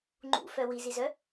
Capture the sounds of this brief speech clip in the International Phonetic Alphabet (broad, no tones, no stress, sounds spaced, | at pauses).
ŋ͡ǃ ṵ f œ w i z i z œ